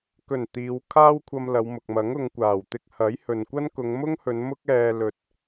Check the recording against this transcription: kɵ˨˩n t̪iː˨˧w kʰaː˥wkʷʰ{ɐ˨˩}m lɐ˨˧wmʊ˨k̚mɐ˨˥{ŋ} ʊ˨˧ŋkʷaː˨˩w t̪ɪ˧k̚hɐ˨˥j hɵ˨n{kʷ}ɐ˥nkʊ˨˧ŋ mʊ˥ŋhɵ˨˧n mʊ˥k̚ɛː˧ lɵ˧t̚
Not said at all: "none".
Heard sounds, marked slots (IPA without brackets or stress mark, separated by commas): ɐ˧, ŋ, kʷ